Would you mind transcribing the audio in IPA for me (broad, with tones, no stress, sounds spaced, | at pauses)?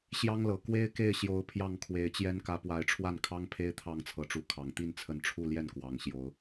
ɕ j ɑ˦ ŋ l ɤ˨˩ k w e˦ ɪ̯ k e˥˨ ɪ̯ ɕ j o˨˦ ʊ̯ pʰ j ɑ˥˨ ŋ kʰ w e˨˦ ɪ̯ t͡ɕ j ɛ˦ n k ä˨˦ p w a˨˦ ɪ̯ ʈ͡ʂʰ w a˥˨ n kʰ ɑ˦ ŋ pʰ e˦ ɪ̯ t̪ʰ ɑ˥˨ ŋ t͡sʰ ɤ˨˦ ʈ͡ʂ u˨˦ kʰ ɑ˨˩ ŋ t̪ i˥˨ n t͡sʰ ə˨˦ n ʈ͡ʂʰ u˥˨ l j ɛ˥˨ n k w ɑ˨˩ ŋ ɕ j o˨˦ ʊ̯